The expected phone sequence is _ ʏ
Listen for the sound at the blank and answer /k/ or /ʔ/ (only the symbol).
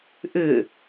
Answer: ʔ